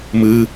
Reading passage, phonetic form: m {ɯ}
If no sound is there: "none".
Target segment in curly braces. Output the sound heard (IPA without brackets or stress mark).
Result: ɯ